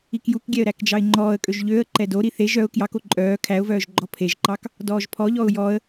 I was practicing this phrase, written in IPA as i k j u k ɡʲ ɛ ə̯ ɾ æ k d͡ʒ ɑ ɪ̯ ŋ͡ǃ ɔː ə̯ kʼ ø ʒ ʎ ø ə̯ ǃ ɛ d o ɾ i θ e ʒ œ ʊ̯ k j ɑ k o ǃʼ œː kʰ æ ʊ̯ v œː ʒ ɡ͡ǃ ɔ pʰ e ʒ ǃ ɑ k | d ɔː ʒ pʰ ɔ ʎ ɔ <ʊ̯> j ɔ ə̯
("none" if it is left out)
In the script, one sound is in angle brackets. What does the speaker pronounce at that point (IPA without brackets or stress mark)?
ʊ̯